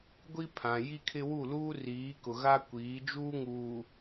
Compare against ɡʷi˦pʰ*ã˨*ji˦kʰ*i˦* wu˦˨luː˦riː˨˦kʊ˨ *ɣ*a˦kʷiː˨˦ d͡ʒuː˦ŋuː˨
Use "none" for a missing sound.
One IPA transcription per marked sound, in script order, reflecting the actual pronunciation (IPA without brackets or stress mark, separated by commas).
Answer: ã˨, ɪ˦, ɣ